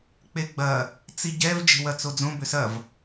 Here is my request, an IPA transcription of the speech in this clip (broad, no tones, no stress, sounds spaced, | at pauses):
k͡p e ɡ͡b ɐ | t͡s i ɟ ɛ v d͡ʒ e̤ w ɐ t͡s o d͡z õ b ʏ s ɐ v